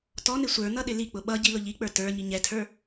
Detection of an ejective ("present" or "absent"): absent